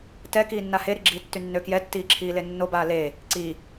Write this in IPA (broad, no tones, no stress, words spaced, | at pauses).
tɛ kiːnːaheɾi ɡ͡ǁiːtːynːø kjɛtːiːǁʰiːle nːobaː le | ǀi